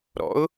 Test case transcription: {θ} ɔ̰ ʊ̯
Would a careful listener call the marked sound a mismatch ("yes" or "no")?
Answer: yes